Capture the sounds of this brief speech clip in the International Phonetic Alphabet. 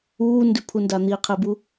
uː n d ʉ pʰ u n d a n̪ i qʰ e b u

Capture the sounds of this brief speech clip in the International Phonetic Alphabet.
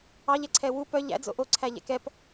ɑ ʎ ɛ ǀʰ ɛ w u p œ ʎ æ̰ d͡z o̰ ʔ o ǀʰ æ ʎ ɛ̰ k ɛ p

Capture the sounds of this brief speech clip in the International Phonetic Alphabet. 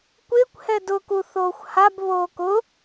kʷ ɪː kʷ h ɛ d ʊ k u θ oː xʷ h a b β oː k ʊ

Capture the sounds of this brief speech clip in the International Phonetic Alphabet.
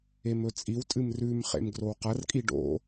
e m ɵ t͡sʼ i w tʼ ɨ m r ʉ m χ ḛ m ɡ r o w q ɐ r kʼ i ɖ o̰

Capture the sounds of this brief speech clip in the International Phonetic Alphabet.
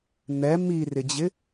n̪ ɛ m i r ɪ d͡ʑ ɪ

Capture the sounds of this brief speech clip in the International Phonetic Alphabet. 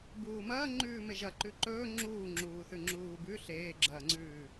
b uː m ɐː ŋ͡ǃ ʉː m e ʒ ɐ ǃ ʉ ǃ ɵː ŋ͡ǁ uː ŋ͡ǁ uː θ ʉ ŋ͡ǁ uː b ʉ ɬ eː ɡ͡ǁ ɐː ŋ͡ǀ ʉː

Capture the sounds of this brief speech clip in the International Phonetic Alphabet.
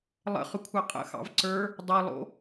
lˠ ə̰ χ ʏ kʷʰ ɑ qʼ ə̰ x ɑ̰ v ǀ ə˞ | dˤ ʌ lˠ o̰

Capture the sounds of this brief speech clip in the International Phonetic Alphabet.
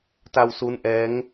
t a˧ w s u˦˥ n ʔ ɛː˦˥ ŋ

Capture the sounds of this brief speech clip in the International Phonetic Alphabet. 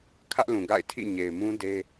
kʰ ä˦ ʔ l ũ˨ ɡ a̰˦˨ ɪ̯ tʰ ḭ˦˨ ɲ e˨ ɪ̯ m ũ˦ d e˦

